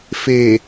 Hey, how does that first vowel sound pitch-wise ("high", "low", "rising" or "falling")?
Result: low